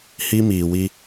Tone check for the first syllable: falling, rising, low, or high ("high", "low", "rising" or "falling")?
high